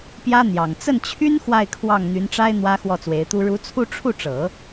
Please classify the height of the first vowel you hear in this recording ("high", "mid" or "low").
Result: low